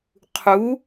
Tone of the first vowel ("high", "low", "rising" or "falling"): rising